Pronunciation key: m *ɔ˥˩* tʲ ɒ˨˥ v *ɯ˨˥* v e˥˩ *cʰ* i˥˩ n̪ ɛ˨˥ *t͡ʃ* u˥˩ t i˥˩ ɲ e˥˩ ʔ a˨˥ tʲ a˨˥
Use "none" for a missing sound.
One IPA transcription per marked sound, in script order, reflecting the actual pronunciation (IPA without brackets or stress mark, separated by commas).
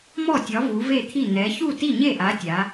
ɔ˥˩, u˨˥, t̪ʰ, ç